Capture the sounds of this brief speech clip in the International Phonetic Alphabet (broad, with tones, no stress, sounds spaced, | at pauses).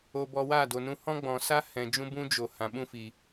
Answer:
o˧ b ɔ˧ w aː˦˨ d o˨ n ũ˧ h ɔ̃˦ ɡ͡b ɔ̃˨ s a˦ h ɛ̃˨ d͡ʒ ũ˦ b ũ˦ d͡ʒ o˨ h ã˨ ɓ ũ˦˨ f i˨